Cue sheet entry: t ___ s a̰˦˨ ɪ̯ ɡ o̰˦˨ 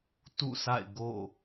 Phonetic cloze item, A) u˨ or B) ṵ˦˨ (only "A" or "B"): B